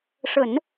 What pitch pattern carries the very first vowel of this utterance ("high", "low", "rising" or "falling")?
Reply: low